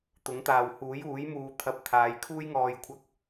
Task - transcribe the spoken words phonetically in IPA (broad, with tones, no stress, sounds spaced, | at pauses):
t̪ ʊ˨˥ ŋ t̪ aː˨ w h uː˨˥ j uː˨˥ j m uː˨ t̪ʰ ɐ˧ p̚ t̪ʰ aː˨˧ j kʰ uː˥ j ŋ ɔː˨ j kʷʰ ɐ˧ k̚